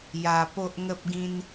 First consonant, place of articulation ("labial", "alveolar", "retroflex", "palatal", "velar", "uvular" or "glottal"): palatal